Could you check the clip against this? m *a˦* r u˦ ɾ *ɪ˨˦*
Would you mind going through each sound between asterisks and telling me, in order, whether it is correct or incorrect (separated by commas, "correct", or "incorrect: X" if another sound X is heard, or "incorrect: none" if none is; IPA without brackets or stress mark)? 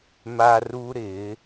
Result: correct, correct